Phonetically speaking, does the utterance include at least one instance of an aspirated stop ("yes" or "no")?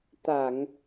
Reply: no